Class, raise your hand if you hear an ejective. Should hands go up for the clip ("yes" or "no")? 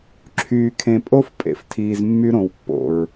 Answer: yes